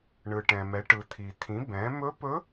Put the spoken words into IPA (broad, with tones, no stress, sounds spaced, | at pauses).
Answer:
ɳ ɯ˩ ʈ ɛ̃˩ m ɛ˩˧ ʈ ɯ˩ t̪ʰ i˩ t̪ʰ ĩ˩˧ b ɛ̃˩˧ m ɵ˧˥ p ɵ˧˥